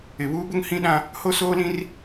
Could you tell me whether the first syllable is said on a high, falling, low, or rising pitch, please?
low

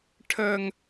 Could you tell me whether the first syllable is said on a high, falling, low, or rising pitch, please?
high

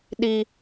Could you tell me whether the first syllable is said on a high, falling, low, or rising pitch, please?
high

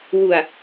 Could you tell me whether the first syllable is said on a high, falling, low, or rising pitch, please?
low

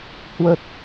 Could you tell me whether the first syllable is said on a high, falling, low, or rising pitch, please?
low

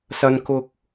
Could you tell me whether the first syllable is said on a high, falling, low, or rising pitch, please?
low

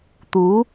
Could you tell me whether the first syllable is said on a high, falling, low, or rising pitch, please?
rising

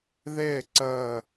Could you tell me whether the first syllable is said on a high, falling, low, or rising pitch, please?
falling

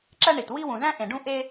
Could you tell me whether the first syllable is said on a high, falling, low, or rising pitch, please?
high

